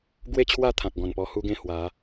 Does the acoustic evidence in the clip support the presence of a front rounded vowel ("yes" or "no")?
no